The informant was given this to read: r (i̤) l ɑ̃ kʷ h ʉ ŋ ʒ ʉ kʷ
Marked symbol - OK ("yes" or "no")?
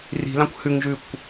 yes